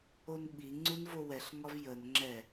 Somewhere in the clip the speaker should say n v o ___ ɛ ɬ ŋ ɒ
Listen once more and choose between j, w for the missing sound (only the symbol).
w